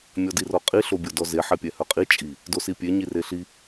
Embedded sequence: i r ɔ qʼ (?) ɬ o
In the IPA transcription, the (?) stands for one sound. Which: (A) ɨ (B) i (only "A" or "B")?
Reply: B